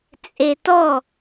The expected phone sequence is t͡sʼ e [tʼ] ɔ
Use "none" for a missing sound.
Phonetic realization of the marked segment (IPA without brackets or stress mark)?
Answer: t